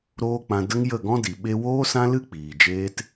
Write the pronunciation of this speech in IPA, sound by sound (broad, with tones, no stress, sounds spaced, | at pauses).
ɾ oː˦ k͡p ã˧ d ə˦ ŋ j ə˦˨ ɡ ɔ̃˦ d i˨ ɓ e˧ w oː˦ s ã˦ l ɨ˦ k͡p iː˨ d͡ʒ eː˦ t